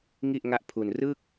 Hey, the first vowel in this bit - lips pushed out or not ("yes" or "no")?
no